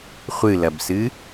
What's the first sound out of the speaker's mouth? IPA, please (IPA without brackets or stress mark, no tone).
χʷ